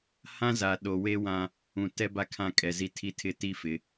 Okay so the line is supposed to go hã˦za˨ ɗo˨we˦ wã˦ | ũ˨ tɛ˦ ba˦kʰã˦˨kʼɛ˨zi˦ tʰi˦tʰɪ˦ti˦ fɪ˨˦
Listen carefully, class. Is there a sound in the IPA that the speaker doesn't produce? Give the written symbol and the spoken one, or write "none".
none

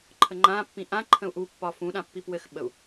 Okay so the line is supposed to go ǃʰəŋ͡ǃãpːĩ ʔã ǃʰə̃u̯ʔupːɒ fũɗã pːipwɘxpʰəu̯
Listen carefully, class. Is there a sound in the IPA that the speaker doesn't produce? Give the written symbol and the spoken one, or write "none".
pʰ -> ɓ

